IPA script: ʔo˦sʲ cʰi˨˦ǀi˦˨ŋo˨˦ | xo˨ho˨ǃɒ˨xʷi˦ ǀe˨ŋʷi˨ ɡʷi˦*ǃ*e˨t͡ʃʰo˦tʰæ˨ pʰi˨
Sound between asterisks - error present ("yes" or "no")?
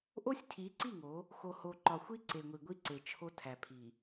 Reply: yes